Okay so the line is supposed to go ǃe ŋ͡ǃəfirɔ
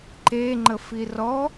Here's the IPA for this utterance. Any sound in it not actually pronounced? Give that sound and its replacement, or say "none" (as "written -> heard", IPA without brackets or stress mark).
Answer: none